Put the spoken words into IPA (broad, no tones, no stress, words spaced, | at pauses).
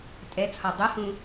tʼɛt͡sʰɒ dˤohũ